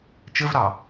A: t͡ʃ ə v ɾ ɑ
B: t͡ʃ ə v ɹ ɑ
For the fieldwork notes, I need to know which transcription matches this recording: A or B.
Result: A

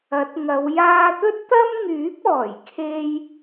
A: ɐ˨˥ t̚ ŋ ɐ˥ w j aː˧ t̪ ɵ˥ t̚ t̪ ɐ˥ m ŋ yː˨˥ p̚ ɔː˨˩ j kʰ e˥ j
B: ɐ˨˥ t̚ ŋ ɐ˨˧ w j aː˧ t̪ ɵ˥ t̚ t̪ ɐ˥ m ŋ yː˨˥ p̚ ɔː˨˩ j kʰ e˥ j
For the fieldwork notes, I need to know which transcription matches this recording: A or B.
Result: B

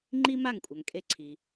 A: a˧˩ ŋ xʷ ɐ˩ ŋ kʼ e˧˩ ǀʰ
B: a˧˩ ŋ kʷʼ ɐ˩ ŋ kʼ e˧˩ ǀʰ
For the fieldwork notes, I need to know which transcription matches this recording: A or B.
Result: B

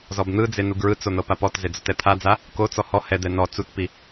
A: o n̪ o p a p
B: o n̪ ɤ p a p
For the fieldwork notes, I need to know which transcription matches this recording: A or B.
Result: B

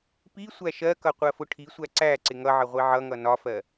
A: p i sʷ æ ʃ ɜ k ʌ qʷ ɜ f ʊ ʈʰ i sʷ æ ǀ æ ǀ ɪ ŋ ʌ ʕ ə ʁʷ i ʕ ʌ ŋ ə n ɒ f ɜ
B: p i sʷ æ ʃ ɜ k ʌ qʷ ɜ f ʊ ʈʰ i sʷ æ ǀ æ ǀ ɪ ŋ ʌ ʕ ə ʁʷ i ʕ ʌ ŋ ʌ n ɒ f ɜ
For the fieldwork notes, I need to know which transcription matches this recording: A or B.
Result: B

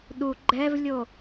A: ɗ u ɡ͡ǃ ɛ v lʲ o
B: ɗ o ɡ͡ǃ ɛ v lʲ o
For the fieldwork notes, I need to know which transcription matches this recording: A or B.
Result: A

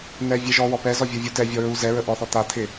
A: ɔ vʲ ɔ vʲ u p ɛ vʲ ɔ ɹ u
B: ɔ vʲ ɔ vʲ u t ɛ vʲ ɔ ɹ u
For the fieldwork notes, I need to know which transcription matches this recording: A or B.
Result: B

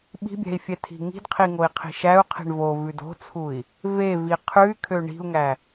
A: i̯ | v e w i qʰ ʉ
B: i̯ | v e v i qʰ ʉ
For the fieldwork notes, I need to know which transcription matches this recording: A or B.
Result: B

